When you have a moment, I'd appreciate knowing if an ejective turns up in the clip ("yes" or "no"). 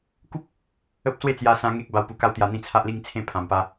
no